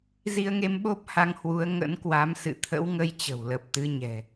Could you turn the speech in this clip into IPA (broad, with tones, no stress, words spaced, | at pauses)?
zi˧ə̯ŋe˧mɓo˦˥p̚ ha˧ŋhwu˨˦ə̯ ŋə̰˧˥nkwa˨˦msɨ̰˧˨ t̪ʰə̰˧˥wŋə˧j t͡ɕə̤˨˩wlə˨˩p̚t̪ɨ˨˦ɲɛ̤˨˩